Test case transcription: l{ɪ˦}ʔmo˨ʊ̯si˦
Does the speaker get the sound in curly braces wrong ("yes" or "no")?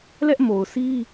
yes